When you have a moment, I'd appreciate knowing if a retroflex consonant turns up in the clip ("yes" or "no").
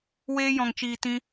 no